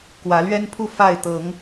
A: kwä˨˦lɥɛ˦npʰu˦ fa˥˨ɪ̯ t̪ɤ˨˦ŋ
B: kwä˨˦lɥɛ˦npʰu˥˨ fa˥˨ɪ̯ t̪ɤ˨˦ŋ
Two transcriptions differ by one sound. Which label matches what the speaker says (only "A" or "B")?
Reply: B